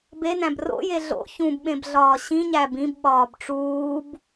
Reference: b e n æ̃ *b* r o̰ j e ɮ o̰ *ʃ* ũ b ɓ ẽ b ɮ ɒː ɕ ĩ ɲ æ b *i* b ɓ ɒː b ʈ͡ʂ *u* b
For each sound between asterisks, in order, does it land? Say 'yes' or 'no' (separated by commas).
yes, no, no, no